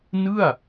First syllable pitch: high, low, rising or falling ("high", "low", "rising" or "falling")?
falling